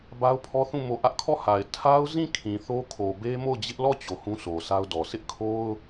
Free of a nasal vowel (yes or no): no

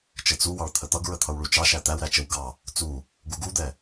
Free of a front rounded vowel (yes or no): yes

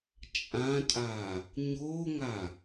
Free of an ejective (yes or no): no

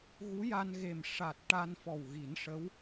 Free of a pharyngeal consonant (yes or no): yes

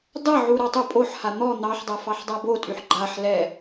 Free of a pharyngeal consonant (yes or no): no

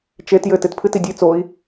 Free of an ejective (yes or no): yes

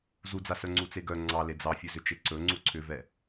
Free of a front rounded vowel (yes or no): no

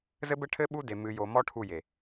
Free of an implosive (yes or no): no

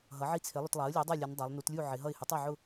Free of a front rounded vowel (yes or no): yes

